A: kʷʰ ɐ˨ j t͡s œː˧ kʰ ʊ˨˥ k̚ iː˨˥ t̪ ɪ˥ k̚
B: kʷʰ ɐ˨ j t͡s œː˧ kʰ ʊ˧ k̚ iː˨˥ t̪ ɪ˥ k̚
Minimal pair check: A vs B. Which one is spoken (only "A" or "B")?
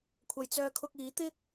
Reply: B